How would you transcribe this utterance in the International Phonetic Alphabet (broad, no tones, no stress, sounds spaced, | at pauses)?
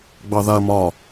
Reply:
ɡ͡b ɑ ð a ɐ̯ m ɒ